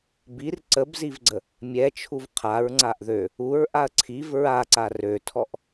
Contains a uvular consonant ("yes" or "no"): yes